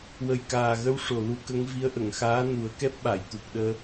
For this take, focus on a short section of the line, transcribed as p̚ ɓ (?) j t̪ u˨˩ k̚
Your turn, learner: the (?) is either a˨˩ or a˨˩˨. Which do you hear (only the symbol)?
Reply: a˨˩˨